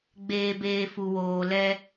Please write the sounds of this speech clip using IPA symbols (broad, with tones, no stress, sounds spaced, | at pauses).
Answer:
ɡ͡b eː˦ b eː˦ f u˧ w oː˧ l ɛ˦